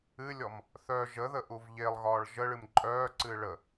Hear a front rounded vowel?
yes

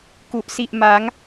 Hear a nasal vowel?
no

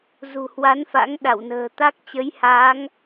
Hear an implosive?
yes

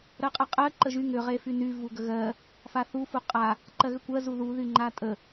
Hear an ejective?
yes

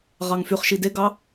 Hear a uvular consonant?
yes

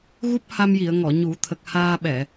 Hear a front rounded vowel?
no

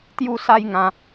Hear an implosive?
no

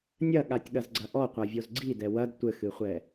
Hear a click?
yes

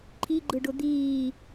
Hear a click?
yes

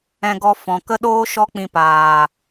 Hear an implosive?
yes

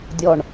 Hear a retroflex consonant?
yes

